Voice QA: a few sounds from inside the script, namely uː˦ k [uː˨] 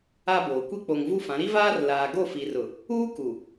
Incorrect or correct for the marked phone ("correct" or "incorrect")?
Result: incorrect